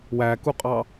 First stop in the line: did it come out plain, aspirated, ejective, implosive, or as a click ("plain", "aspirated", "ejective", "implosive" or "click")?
plain